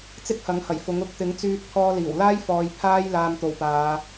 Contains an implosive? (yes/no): no